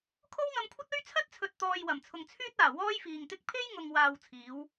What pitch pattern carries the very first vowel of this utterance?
high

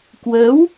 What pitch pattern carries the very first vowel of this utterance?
rising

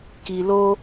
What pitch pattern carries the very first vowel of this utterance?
low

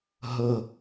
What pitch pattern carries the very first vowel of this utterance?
low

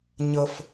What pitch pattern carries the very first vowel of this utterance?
low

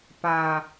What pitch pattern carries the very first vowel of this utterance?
low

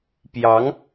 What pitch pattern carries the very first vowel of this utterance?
rising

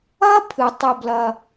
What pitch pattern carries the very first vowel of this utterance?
high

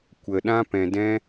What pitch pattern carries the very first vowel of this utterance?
low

